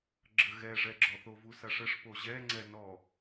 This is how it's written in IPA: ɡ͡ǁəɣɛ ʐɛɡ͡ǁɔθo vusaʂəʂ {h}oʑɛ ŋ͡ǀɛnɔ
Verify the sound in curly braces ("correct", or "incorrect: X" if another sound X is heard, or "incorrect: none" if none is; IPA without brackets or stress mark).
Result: incorrect: p